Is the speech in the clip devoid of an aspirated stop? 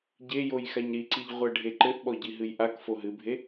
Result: yes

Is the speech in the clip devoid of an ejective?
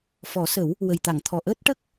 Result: yes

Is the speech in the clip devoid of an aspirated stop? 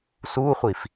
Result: yes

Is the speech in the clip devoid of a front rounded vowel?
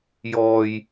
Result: yes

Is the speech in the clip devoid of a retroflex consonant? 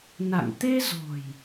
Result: yes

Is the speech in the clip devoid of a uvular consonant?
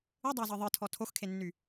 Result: yes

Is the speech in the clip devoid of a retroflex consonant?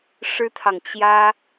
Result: no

